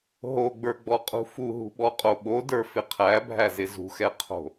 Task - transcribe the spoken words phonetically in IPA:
ɦoɡ͡bə˞ɡ͡bɔqʼṳ fuɦṳɓɔqʼo ɓodə˞fɪ qʰæbʱæzɪ zṳxɛqʰo̤

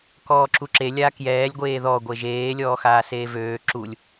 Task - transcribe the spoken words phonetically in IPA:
kɔːǁuǁe lʲaːkjɛːlʲ ɡʷeːðɔ ɡʷeʒeː lʲɔːxaːseːvøː ǁulʲ

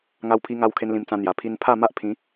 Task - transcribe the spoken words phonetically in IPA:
ŋa˦wpʰi˦ ŋa˧wkʰe˧n lĩ˧mt͡sã˧n̪ja˨˩ pʰi˧npʰa˥˧ ma˦ʔpʰĩ˨˦

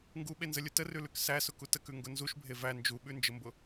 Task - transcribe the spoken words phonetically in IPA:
ŋɡuɓenzəlʲʊ tərʉlʉk sæsʊku təkʉŋɡʊ nzuʃbʱe væ nd͡ʒuɓʉnd͡ʒəmbʊ

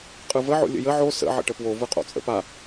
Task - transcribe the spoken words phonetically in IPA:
qʼɯvə ʕo̰lʲə̰jə ʕo sə̰ ʕə̰ʈəpwo vɯqʼo̰t͡sʼə̰pa

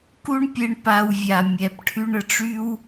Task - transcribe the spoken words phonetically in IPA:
ku˦ɳpʲe˧ɳ pa˧wvʲa˨ mʲɛ˨pʈʰy˧ɳə˨ʈ͡ʂy˦w

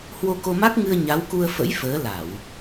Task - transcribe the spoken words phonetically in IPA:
hwo˧ko˧ma˦˥k̚ŋɨ˧ə̯ ɲa˨˦wku˧ə̯fə̰˧˥j fəː˨˦la˧˩˨w

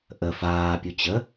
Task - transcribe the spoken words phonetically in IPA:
ʔə faːpʲu t͡ɕə

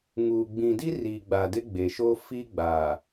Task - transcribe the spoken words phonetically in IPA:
ŋuː˨ɡ͡bĩ˨di˦riː˨ ɡ͡ba˨dɪ˦ ɡ͡be˨ʃoː˦ fi˦ɡ͡baː˨

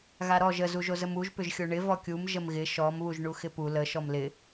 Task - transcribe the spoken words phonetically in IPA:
ɣaɾɔʒ ə zuʒozəmuʒ pʏʒxʲoɳɪ vɔkʲum ʒəmɣɪ ʃɔm βuʒɳuxɪpu lə ʃɔmlɪ

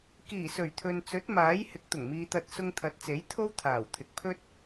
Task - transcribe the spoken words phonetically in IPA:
kiː˨˩sɵ˨˩ɥt̪ʰɵ˨nt͡sɵ˨˥t̚ maː˨˥j hɪ˨˥k̚t̪ʊ˨˩ŋmiː˧t̪ɐ˧t̚ sʊ˧ŋt̪ʰɐ˨˥t̚t͡se˨˥j t̪ʰo˥wt̪ʰaː˨˩w t̪ʰɪ˨k̚pʰɵ˥t̚

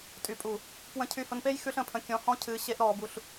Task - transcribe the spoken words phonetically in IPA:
tʼy˨pʼu˨ | pwə̃˧cʰy˧hʊ˧npe˦j xʉ˦ɬə̃˧pʰə̃˧ kʲɔ̃˧hɔ̃˦cʰɨː˧ ɕe˦ʔɾɔː˧bu˧ɬ

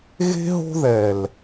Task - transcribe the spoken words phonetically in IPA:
ɣe̤˦ɦo̤˦ ðɛ˨l

